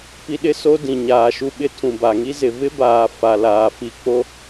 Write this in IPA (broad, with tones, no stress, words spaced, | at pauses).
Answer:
pi˦ɗɪ˦so˦ dĩ˨ɲaː˨ʃu˦ɓɪ˦ tʰũ˨ba˨ŋi˦ zɪ˨vɪ˦baː˨ fa˨laː˨fi˨k͡po˦